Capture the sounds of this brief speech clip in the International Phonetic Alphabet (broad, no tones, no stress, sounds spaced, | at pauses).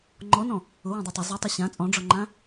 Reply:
ŋ͡ǃ ɔ n ɔ̃ | ʊ w ã dˤ ɛ tˤ ʊ zˤ a tˤ i ɕ ã t͡sʼ ɔ̃ ɖ͡ʐ ɔ ŋ͡ǃ ã